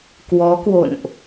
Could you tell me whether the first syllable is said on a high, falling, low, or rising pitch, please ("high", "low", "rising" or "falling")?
rising